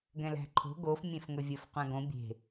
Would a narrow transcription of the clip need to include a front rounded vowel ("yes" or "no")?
no